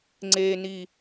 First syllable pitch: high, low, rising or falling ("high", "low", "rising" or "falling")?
low